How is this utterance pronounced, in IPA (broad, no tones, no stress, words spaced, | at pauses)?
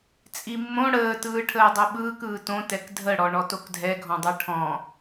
t͡sʼimːõ ɽəː tɯːʈʰəːdˤoɓɯːk ɯːtõ tɛkdʱəɽɔ ɳɔtokdʱɛɡʱɔ̃ dˤɜʈʰɔ̃